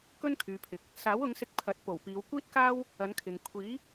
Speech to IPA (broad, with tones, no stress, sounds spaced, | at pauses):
k ɵ˥ n kʰ yː˨ pʰ ɪ˨ k̚ | s aː˨˥ w ʊ˨˧ ŋ s ɪ˧ k̚ pʰ ɐ˨˥ t̚ p o˨˩ w p iː˨˧ w kʷ iː˥ t̚ k aː˥ w | ɐ˨˧ n kʰ ɪ˨ ŋ kʷʰ iː˨˥